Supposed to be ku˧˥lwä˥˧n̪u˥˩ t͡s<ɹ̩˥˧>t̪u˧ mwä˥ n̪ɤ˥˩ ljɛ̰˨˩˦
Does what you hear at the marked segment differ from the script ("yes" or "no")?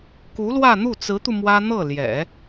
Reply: yes